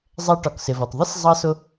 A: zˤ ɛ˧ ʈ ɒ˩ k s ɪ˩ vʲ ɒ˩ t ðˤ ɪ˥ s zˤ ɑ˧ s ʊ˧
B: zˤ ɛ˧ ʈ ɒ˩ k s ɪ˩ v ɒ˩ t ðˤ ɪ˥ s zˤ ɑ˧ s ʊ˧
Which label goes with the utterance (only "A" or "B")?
B